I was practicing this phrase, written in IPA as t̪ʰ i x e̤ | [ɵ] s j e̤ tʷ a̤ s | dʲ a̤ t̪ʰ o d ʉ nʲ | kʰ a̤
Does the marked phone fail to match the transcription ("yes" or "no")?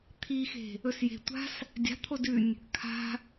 no